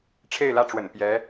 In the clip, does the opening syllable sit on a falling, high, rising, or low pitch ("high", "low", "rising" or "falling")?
falling